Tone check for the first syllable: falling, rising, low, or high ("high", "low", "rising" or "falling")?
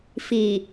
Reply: low